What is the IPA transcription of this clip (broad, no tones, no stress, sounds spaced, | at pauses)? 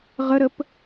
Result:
ʁ ə ɾ ə p